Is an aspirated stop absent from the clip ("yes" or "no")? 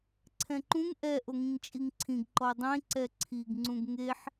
no